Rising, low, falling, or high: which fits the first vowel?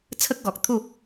high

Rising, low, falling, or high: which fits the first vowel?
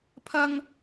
high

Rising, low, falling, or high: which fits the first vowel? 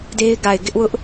high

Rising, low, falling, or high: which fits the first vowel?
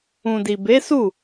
low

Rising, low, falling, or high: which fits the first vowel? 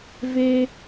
high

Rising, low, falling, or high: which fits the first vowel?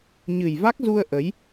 low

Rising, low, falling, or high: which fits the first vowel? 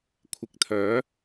low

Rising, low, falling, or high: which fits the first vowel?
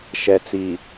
low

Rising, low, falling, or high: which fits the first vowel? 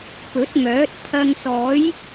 rising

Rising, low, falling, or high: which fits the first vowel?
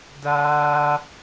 high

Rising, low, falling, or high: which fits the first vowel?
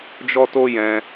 high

